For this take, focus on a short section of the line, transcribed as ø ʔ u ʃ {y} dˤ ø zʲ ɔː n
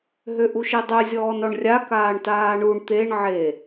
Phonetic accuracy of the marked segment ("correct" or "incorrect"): incorrect